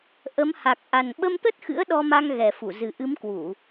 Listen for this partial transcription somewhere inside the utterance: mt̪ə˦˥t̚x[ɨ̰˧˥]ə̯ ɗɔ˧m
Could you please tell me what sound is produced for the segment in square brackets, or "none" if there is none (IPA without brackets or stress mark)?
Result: ɨ̰˧˥